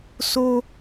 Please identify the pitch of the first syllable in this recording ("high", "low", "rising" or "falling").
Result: high